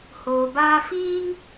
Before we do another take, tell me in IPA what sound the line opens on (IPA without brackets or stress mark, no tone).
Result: h